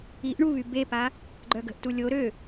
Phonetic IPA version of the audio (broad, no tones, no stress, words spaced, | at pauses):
iʔ ɳuβy bepa | ɡ͡ǃœɡə̤ʔtu lʲo ɾø